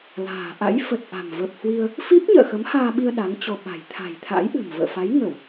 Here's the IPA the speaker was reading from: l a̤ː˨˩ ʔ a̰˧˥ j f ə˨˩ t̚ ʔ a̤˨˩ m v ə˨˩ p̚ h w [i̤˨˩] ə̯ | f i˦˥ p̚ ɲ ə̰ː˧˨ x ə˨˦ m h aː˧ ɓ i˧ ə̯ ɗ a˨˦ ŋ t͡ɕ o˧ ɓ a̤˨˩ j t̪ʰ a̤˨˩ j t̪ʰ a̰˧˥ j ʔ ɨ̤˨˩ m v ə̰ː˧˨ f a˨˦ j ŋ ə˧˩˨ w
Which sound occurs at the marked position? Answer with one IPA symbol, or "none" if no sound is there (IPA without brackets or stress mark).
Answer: i˧